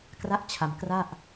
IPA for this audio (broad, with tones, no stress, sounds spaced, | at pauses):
k r a˥˩ ʔ t͡ɕʰ a˧ m k r a˥˩ ʔ